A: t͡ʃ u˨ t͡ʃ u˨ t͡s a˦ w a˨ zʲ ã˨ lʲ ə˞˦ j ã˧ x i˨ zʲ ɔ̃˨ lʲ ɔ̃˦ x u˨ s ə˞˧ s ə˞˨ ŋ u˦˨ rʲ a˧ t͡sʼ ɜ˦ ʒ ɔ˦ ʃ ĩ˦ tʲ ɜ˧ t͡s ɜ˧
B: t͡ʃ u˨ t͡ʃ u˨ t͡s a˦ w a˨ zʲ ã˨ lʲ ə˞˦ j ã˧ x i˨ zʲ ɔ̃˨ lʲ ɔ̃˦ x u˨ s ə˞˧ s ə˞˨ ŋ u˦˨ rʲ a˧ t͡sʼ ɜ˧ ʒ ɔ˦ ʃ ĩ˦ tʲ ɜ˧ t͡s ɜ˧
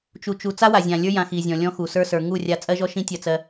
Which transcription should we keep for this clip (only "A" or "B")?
A